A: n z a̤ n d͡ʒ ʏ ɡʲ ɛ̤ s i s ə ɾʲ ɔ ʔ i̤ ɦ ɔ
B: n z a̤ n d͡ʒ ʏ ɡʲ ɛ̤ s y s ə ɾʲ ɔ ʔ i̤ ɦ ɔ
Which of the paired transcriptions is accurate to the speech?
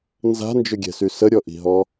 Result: B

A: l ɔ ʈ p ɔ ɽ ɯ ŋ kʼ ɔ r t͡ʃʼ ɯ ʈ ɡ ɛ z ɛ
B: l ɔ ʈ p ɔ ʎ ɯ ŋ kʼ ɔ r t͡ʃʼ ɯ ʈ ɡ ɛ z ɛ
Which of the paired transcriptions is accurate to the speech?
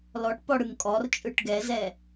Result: A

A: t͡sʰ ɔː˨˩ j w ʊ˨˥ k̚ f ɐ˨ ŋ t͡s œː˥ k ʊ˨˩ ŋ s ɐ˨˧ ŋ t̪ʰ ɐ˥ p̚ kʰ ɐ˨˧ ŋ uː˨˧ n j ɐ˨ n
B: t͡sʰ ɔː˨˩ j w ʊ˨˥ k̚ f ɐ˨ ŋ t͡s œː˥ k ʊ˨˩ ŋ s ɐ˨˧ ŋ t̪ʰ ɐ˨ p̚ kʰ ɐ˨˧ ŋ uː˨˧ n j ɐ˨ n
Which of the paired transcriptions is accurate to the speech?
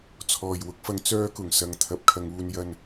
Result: B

